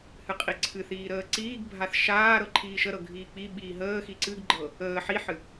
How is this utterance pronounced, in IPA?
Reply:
h ɨ qʼ i ǀʰ ɨ θ iː ɾ əː ǀ iː ɡ bʱ a θ ʃ aː ɾ ɤ ǃʰ iː ʃ ə ɾ ɤ ɡʱ iː k͡p i ɓ iː ɦ əː x i ǀ ɨ ɡ ɡ͡ǃ ɤ | əː ħ i ħ ɨ

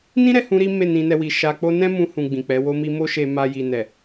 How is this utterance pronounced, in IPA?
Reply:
n ĩ˦ ɾ ɛ˦˨ h ũ˧ ɾ i˦ m e˦˨ n ĩ˧ n ɛ˧ w i˨ ʃ a˧ k͡p o˦ n ɛ̃˦ m ũ˧ h ũ˨ ɡ͡b ĩ˨ k͡p ɛ˨˦ w o˦ m i˦ m o˦ ʃ e˧ m a˧ j i˨ n ɛ˨

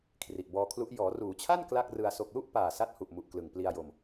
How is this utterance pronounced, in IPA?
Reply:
kʰ r i˨˩ ʔ b ɔː˧ kʰ l u˦˥ ʔ j ɔː˩˦ r uː˩˦ t͡ɕʰ a˥˩ n k l a˥˩ k̚ r ɯ˧ a̯ s o˨˩ k̚ l u˥˩ ʔ p aː˨˩ s a˦˥ t̚ h u˨˩ ʔ m u˨˩ ʔ k l ɯ˨˩ ŋ p l i˧ a̯ j o˧ m

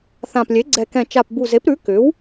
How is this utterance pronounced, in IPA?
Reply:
θ ã˨˩ p lʲ e˩˥ ɡ͡ǀ ɛ˨˩ k ɛ̃˨˩ t͡ʃ a˨˩ p b u˨˩ z e˩˥ p ɾ ʉ˩˥ k ʏ˩˥ w

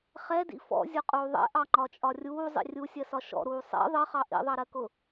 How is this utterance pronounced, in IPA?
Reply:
χ ɛ d ḭ f ɔ̰ zʲ ʊ qʼ uː ðˤ ɛ̰ ʔ ɑ ŋ͡ǃ ɒ t͡ʃʼ ɒ rʲ uː zˤ ḭ rʲ u sʲ ɜ s ɒ ʃ ɔ̰ ɾ uː sˤ ɛ̰ ðˤ ɜ χ ɑ ʔ ḭ ðˤ ɑ ɾ ɜ k ʊ

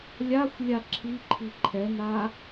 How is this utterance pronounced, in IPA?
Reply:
lʲ a xʷ lʲ a ǁʰ i ǃʰ i ǃʰ ɛ n a

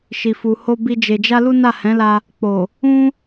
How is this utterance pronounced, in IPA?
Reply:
ʃ i˨ f u˨ h o˧ b i˧ d͡ʒ e˨ d͡ʒ a˧ l u˦ n a˦˨ h ɛ̃˨˦ l a˧ | k͡p o˨ | ũ˦

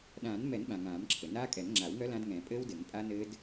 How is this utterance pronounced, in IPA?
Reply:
ɗ ãː˨˩˦ n m ɛ˨˩˦ n ɓ ã˩ ŋ ãː˨˩˦ m ǁʰ ɘ˩ n aː˦˥ kʼ ɛ˨˩˦ n ŋ͡ǁ a˨˩˦ w ŋ œ˦˥ l ã˦˥ d ŋ ɛ̃ː˨˩˦ pʼ ɘː˦˥ w d ɘ˨˩˦ ŋ pʼ a˦˥ n ɘː˦˥ d

